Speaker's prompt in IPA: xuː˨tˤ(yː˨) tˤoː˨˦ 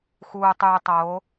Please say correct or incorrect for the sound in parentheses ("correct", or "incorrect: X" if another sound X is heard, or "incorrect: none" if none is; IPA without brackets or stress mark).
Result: correct